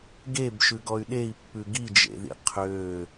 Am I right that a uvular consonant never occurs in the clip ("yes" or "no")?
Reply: no